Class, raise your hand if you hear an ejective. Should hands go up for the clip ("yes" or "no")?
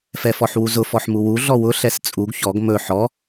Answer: yes